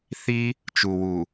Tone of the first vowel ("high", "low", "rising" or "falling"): high